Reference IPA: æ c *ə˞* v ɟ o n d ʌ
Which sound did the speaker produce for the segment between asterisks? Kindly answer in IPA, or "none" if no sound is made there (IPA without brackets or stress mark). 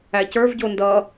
ə˞